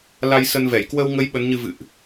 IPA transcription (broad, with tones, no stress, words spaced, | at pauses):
la˧j sə˧nvɛ˧˩j kwə˧wŋə˨˦j ɓə˨˦nɲɨ˧ vɨ̰˧˨ʔ